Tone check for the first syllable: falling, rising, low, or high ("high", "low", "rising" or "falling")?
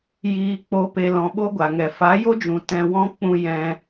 low